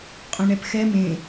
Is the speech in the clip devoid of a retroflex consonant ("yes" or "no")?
no